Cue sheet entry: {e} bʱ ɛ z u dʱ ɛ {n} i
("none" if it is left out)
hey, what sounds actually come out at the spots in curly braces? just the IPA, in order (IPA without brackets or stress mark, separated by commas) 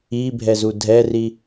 i, r